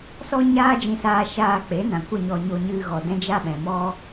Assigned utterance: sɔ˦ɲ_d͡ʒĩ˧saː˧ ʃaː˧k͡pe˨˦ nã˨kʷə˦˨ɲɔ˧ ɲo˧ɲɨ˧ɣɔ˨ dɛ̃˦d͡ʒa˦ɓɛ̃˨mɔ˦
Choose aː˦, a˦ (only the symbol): aː˦